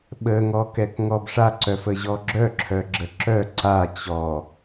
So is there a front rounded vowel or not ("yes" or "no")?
yes